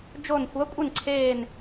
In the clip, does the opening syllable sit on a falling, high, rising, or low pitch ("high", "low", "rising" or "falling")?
falling